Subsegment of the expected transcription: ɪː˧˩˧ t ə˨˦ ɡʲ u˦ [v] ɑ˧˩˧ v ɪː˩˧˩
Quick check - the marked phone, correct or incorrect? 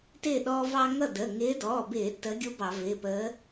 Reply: incorrect